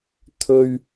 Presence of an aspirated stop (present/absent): present